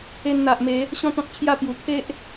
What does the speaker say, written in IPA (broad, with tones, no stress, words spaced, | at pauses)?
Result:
e˧nn̪a˨ʔme˨˦ | ɕɔ̃˥˧t̪ɔ̃˦k̚t͡ɕʰja˥˧pju˨˩ kʰe˦ʔ